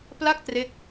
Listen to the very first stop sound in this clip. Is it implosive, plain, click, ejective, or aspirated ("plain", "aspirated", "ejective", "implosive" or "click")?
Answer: plain